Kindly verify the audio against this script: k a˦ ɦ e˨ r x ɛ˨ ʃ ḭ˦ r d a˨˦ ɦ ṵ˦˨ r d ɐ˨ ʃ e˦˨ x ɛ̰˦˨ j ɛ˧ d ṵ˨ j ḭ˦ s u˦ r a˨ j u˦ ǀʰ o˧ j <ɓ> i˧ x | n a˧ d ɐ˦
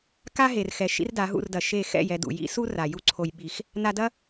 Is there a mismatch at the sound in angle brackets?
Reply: no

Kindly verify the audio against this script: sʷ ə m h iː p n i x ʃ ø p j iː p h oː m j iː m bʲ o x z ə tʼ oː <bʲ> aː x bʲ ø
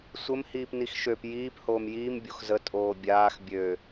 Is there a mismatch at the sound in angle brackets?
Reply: no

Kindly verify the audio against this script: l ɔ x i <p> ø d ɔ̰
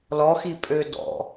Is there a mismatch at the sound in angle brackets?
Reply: yes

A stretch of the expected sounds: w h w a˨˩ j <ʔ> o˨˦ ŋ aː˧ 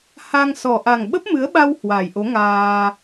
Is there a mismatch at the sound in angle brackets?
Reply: no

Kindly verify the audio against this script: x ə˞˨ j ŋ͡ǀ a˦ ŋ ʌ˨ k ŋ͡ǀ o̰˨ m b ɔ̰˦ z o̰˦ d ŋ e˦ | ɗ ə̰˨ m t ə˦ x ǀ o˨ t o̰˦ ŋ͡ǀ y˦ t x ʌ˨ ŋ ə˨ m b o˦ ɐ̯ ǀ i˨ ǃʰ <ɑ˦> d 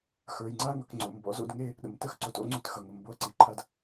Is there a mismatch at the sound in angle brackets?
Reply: yes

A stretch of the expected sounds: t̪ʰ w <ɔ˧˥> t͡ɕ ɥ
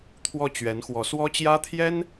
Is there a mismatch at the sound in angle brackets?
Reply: yes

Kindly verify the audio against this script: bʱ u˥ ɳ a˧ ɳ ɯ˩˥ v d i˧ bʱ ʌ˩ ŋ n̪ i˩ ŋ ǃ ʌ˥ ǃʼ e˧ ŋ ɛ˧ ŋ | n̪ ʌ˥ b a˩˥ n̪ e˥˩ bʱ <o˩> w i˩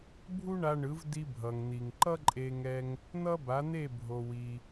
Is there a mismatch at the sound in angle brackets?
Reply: no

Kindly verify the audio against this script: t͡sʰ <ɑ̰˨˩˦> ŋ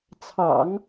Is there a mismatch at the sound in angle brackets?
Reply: no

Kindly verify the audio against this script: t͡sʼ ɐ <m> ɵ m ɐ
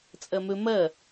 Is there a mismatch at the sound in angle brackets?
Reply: no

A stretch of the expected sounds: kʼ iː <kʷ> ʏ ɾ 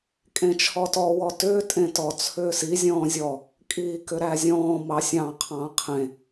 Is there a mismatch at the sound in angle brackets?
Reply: yes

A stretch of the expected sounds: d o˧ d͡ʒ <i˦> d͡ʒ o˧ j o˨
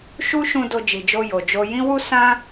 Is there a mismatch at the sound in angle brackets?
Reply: yes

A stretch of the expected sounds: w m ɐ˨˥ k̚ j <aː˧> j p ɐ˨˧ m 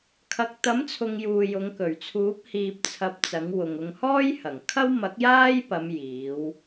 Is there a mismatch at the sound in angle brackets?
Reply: yes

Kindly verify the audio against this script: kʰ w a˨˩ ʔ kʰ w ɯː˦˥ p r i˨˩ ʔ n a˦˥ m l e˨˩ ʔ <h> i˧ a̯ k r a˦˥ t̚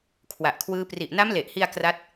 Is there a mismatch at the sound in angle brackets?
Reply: no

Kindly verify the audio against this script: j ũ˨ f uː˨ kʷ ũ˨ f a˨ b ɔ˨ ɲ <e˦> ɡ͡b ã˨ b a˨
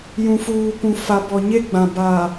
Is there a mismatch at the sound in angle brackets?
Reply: no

